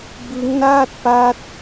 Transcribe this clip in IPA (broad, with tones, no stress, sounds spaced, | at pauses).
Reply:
b ɯ˦˥ ŋ n aː˥˩ t̚ p a˦˥ t̚